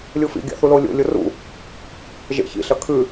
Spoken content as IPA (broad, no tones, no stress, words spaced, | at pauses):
lʲufḭ ɡʲa̰θulolʲo̰ lʲorṵ | ʒḛçḭ ɬɐkʰʉ